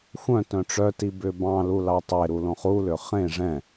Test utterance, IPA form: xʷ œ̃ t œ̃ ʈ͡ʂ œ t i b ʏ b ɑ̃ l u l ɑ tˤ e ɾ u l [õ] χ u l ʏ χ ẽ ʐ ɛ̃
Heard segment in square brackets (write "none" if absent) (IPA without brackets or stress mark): õ